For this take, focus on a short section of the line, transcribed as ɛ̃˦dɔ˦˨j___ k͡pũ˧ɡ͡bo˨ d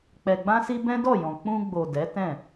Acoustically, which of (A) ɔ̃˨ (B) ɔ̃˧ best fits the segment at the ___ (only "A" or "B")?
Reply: A